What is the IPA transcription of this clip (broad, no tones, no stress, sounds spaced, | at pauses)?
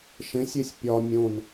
ʃ ẽ sʲ e sʲ pʲ ɒ mʲ õ n